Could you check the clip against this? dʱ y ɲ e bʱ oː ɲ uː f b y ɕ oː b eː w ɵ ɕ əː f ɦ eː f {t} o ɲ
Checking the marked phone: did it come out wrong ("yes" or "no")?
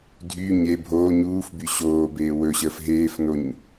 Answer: yes